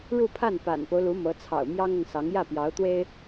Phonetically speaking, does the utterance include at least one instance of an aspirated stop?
yes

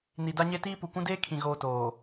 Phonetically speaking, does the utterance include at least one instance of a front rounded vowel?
no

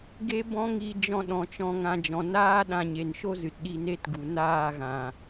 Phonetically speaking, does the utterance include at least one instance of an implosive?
yes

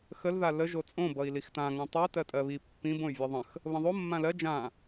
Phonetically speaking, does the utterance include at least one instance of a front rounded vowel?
yes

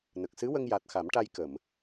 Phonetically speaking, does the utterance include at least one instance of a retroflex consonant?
yes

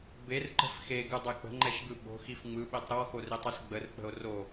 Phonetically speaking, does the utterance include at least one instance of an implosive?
yes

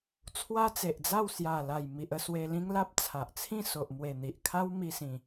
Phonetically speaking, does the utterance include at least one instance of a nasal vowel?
yes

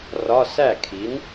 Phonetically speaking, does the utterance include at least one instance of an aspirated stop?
yes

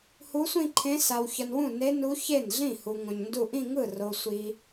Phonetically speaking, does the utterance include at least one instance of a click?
yes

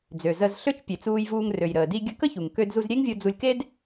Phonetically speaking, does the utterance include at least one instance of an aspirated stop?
no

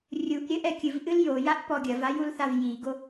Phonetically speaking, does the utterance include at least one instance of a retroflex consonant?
no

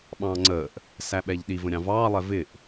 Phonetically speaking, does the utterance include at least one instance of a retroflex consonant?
no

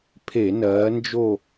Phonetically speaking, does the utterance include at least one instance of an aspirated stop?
yes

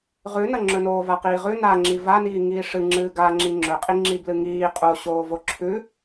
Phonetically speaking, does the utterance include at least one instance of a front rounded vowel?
no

